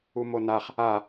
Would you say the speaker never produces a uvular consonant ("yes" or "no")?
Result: no